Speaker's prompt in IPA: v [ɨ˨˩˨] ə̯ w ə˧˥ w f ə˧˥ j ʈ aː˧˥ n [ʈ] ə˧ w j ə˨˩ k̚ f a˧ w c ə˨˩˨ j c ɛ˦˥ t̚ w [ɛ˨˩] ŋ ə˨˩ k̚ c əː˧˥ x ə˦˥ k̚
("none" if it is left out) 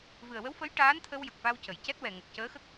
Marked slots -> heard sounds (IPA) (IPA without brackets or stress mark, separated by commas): ɨ˨˩, t̪ʰ, ɛ˨˩